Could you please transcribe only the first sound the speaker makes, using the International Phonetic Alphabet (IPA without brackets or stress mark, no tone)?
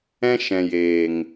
ɛ̃